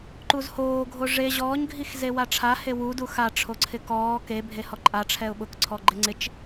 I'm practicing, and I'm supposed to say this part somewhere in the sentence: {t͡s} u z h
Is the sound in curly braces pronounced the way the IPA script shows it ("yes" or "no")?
no